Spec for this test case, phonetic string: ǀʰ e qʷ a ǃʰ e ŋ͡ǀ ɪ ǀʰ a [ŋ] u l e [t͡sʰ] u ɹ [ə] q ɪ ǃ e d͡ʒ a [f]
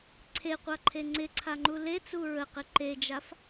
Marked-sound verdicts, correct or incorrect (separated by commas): incorrect, incorrect, correct, correct